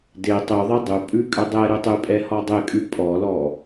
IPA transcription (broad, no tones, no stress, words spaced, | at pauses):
de tˤʉðˤe dˤʉpʼʉ kʼʏdˤɛɾʉ tˤʉpʼɛ hɔdˤekʼʉ pʼɔlɔ